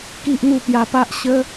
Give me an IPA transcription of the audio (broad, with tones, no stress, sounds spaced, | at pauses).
k i˦ ʔ n̪ u˥˧ p j a˧ p a˦ ʔ ɕ ə˦